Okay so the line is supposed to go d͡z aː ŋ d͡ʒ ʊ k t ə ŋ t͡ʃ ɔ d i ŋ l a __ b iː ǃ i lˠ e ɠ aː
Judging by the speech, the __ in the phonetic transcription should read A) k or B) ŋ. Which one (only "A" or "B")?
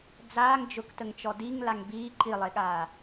B